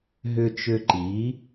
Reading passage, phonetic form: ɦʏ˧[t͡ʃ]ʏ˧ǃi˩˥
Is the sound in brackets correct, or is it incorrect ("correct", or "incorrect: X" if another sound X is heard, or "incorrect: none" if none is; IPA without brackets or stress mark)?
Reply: correct